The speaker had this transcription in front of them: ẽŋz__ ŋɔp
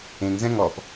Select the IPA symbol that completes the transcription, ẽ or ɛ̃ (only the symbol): ɛ̃